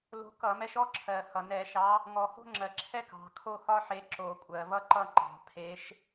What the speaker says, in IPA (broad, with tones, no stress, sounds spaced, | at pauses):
l o̤˨˥ k ʌ˧˩˧ m ɛ˨˥ ʃ ɔ˥ ǁʰ ɜ˩ h ʌ˩ n ɛ˧˩˧ ʃ ɑ˨˥ | ŋ ɔ˩ h o̤˥ ŋ͡ǁ ɜ˩ ǁʰ ɛ˥ k ɑ̤˩ kʰ o˥˧ h ɒ˥ ħ e˨˥ ǁ o˧˩˧ kʷʼ ɜ˩ v ʌ˥ ǃ ʌ˥˧ ŋ͡ǃ ɑ̤˧˩˧ pʰ e˨˥ ʃ